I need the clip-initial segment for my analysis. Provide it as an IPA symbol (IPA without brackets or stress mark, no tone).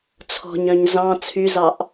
t͡sʰ